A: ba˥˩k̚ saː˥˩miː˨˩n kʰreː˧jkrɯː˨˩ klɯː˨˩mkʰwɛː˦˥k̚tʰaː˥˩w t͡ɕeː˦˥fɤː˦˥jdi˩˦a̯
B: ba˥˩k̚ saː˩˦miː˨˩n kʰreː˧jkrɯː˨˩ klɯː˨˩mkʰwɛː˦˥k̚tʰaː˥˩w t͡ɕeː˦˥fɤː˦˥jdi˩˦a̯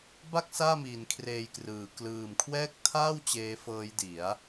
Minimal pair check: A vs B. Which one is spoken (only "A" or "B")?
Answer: A